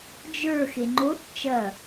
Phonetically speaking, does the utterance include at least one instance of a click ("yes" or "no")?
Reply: yes